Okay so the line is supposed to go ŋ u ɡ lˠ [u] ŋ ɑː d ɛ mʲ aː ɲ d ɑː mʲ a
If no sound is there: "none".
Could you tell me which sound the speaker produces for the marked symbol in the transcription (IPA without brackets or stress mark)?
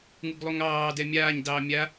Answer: u